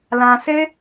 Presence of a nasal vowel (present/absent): present